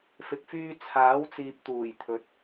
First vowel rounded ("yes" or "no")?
no